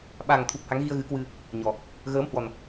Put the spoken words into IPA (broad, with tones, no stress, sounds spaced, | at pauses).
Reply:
ɓ a˨˩ ŋ t̪ʰ u˨˩ p̚ h a˨˦ ŋ ɣ i˧ ə̯ ɣ ɨ˨˦ k w ɨ˧ | ɲ ɔ˨˩ | ɣ əː˨˦ m h w ɔ˨˩ n